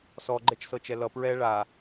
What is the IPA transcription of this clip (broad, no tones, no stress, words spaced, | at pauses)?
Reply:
sɔɡ͡ǃɛt͡ʃsɤt͡ʃɛ lʌ pɹɛ ɭa